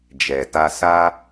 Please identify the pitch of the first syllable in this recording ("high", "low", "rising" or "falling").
low